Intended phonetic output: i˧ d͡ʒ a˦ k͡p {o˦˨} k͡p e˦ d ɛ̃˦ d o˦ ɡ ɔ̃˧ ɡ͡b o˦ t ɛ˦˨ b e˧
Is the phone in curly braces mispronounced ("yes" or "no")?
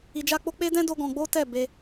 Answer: yes